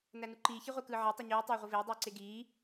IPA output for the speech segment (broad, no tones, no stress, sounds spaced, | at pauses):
n æ n u ǃ iː ç i ʁʷ e k ɯː ʕ e tˤ u ɲ yː tˤ eː ʁʷ ɯ v eː dˤ yː ǀ e ɡ iː